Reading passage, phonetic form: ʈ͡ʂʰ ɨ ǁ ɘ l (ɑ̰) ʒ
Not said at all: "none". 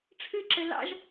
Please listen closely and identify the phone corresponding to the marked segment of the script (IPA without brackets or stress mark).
ɑ̰